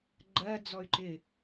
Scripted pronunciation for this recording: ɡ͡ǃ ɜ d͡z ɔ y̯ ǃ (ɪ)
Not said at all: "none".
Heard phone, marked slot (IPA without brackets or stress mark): ɪ